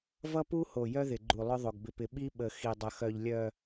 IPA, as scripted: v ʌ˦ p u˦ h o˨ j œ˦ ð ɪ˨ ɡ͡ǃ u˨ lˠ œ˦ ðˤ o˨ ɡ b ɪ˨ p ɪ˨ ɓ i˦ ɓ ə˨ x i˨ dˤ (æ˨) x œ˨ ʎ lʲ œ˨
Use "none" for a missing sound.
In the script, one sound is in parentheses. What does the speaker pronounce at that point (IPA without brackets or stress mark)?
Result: ə˨